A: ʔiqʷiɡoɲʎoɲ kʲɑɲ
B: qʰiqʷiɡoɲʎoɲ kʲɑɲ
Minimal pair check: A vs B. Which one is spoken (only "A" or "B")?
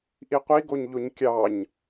A